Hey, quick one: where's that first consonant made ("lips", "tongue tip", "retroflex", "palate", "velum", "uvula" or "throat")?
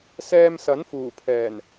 tongue tip